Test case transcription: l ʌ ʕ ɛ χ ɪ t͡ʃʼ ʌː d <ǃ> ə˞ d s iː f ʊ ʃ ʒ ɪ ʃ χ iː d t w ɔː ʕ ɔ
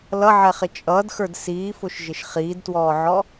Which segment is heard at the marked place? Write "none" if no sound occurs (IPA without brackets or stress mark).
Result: x